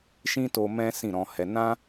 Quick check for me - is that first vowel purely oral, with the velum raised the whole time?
no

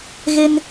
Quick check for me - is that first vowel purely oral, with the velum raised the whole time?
yes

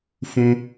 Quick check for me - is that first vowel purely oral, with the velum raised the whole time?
no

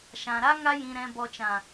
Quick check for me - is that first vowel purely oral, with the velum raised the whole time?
no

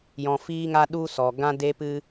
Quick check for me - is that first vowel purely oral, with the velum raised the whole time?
no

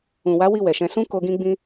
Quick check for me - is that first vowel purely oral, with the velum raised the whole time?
no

